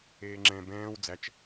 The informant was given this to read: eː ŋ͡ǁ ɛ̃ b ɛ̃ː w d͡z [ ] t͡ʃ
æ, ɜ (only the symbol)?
æ